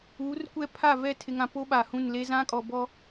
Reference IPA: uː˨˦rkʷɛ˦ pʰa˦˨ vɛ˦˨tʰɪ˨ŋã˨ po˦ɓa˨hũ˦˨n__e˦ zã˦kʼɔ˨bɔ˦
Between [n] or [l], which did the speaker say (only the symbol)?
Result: l